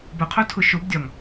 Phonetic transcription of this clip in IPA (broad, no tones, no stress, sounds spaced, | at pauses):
b ʊ qʰ o tʰ ʊ ʃ o b dʲ ɒ ŋ